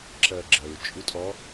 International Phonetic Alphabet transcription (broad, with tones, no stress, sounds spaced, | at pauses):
ǁ ɜ˩ ɡ͡ǁ ɜ˩ ɹ t͡ʃʼ u˧˥ tʼ ɔ˧˥